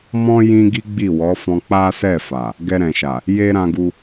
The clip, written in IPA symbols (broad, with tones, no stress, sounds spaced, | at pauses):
m ɔ̃˦ j ĩ˧ ɡ i˦ ɡ͡b i˦˨ w ɔ˨˦ f ɔ̃˧ k͡p a˦ s ɛ˦˨ f a˨ | ɡ ɛ˧ ɾ ɛ̃˨ ʃ a˨ | j e˦ ɾ ã˧ ɡ u˧